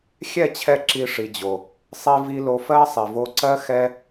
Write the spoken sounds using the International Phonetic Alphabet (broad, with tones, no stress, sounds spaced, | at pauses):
xʲ ɛ˦˨ t͡ɕʰ ɛ˧ ǁ i˧ ʂ i˨ d͡ʑ o˨ | sˤ i˧ v i˧ l o˧ f ɜ˦ sˤ i˨ v o˧ ǀ ɜ˦ x ɛ˦